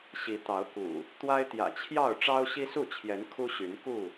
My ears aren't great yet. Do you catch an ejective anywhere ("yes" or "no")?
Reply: no